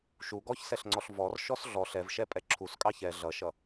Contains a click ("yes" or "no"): yes